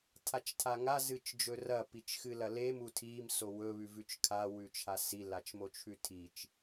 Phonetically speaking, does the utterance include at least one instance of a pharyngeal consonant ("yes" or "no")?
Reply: no